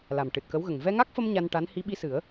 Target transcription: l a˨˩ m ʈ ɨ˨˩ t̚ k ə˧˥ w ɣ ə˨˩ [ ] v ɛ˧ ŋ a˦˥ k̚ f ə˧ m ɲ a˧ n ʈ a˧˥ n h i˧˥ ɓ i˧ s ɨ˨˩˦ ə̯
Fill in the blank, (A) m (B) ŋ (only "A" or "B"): B